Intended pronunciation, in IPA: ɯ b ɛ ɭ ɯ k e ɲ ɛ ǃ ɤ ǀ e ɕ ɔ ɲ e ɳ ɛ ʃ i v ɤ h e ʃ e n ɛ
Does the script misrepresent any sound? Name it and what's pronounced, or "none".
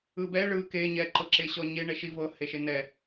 ǀ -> ǁ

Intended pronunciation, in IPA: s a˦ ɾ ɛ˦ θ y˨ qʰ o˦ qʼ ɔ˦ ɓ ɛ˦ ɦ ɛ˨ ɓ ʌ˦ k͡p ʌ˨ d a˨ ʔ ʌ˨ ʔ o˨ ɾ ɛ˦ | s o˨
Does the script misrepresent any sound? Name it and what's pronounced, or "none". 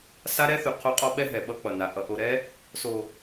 d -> n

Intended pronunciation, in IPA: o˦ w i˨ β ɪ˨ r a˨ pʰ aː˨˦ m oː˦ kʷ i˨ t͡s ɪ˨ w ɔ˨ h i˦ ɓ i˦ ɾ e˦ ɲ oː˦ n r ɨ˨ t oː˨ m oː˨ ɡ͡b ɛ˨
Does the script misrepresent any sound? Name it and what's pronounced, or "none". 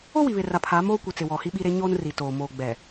ɨ˨ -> i˨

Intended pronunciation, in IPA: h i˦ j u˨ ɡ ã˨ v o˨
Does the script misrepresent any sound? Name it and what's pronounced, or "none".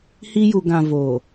none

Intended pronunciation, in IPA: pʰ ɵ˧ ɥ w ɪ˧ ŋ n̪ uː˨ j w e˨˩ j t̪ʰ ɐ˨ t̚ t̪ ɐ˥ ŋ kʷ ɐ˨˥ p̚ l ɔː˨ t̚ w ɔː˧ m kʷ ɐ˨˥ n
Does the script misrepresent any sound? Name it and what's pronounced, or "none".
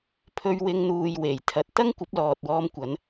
none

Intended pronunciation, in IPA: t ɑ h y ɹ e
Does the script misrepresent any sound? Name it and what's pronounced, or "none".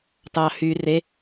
ɹ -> r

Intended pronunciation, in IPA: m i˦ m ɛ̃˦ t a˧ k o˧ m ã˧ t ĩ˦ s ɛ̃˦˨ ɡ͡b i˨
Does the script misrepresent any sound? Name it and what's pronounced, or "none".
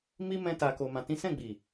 none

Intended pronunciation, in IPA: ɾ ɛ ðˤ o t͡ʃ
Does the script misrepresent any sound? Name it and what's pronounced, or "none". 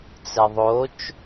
ɾ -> t͡s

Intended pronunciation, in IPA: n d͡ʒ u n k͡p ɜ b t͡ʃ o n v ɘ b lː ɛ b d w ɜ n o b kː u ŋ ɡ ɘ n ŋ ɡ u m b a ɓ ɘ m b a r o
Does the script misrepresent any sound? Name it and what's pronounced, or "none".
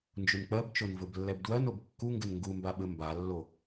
r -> lː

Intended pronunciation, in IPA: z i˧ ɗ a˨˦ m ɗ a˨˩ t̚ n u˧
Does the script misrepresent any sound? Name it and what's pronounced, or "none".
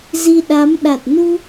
none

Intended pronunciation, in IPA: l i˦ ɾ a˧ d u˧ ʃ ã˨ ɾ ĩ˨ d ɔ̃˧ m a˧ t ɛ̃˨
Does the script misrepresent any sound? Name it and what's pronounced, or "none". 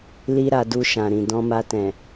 none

